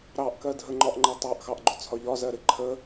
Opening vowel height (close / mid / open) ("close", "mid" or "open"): open